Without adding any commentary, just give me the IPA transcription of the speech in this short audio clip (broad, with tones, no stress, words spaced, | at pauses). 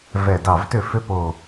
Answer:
vɛ˧˩ dɑ˧˩vtʏ˥˩ fʏ˥po˧˩